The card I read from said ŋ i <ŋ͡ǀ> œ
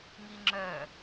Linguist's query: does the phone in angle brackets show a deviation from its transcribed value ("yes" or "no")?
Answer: yes